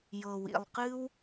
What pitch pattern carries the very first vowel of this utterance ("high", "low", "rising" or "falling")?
low